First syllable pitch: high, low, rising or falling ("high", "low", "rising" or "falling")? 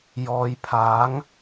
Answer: low